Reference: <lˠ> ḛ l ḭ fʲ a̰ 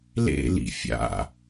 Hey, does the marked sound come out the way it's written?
no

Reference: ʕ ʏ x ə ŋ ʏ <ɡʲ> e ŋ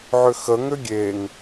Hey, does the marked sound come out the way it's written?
yes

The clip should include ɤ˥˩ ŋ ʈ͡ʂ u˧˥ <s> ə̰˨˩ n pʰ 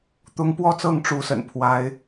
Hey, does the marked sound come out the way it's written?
yes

